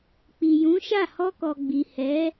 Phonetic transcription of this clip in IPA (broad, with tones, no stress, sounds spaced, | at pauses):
k͡p i˨ j ũ˨˦ ʃ a˦˨ h ɔ˧ k ɔ˨ ɡ͡b i˨ h ɛ˨˦